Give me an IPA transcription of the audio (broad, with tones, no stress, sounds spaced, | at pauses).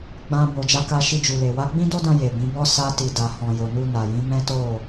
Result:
ɡ͡b ã˧ b o˨ d͡ʒ a˧ k a˧ ʃ i˧ d͡ʒ u˨ l e˨ w a˨˦ ɡ͡b ĩ˦ d o˦ d ã˧ j e˨ b ĩ˨˦ b ɔ˦ s a˧ t i˨ d a˨ h ɔ̃˨ j o˨ n u˧ n a˨ j ĩ˨˦ m ɛ̃˦ t o˦˨